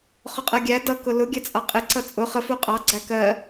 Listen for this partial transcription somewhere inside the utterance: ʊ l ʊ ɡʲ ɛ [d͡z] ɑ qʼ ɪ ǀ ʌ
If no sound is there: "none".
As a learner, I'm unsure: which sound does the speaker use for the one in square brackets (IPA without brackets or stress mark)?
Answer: t͡sʼ